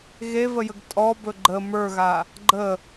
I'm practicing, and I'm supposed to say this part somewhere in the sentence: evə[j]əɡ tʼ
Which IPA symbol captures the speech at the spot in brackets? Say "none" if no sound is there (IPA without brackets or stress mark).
j